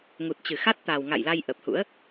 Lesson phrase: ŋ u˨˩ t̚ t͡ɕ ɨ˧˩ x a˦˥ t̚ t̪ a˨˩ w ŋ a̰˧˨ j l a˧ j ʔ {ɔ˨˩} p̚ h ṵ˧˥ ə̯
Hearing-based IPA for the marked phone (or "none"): ə˨˩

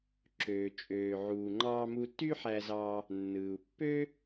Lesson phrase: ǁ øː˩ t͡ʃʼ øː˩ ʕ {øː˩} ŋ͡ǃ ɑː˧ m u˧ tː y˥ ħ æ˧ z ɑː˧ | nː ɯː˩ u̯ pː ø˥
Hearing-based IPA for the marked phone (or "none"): uː˩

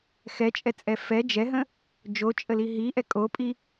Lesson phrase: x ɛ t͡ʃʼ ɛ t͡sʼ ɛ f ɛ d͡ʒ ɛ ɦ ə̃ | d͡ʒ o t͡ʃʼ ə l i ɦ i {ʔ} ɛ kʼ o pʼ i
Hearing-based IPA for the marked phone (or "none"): ʔ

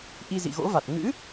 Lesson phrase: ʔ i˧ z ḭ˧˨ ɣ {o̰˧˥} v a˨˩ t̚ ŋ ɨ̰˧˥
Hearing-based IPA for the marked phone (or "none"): o̰˧˥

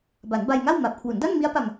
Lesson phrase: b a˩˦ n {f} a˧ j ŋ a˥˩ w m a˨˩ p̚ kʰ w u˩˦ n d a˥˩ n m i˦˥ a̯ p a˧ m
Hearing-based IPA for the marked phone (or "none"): b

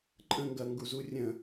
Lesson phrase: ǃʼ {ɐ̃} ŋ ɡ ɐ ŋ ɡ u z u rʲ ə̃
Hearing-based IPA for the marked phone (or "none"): ə̃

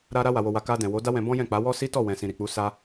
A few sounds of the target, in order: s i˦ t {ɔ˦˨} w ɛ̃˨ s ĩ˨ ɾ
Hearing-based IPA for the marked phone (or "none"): ɔ˦˨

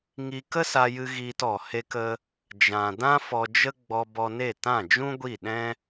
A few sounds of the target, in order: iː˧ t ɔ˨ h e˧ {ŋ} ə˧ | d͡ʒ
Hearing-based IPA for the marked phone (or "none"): k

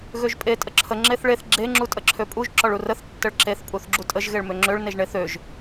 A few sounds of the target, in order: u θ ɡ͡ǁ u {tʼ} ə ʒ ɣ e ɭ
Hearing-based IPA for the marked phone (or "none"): tʼ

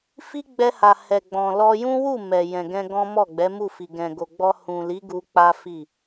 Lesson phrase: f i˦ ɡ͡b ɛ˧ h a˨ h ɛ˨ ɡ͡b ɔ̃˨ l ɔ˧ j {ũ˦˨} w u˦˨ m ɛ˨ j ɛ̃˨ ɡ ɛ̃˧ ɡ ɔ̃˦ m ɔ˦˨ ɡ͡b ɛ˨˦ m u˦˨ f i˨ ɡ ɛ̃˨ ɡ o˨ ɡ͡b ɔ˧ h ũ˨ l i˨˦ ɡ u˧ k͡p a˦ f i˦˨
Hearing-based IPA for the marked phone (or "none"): ũ˦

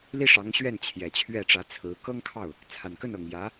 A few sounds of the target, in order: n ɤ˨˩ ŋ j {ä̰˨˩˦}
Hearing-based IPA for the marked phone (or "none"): ä˧˥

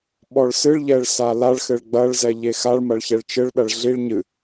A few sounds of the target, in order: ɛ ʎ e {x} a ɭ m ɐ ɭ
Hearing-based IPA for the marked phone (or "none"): x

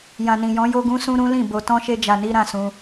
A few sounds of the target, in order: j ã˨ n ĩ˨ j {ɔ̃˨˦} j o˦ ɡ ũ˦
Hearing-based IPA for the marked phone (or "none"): ɔ̃˨˦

